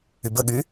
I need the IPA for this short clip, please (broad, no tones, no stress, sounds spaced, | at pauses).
y b ə ɠ y